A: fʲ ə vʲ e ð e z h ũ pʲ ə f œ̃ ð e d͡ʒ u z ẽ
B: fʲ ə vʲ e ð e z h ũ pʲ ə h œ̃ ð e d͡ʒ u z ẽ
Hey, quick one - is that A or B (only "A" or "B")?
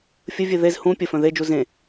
A